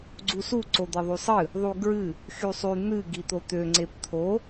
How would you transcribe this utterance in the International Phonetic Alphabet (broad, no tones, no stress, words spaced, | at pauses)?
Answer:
ɡ͡ǀusu ǀod̪eðˤysˤɨ | ðˤuɡɹɨ | xysˤy n̪ɨ ɡit̪ot̪ø ŋ͡ǀept̪ʰo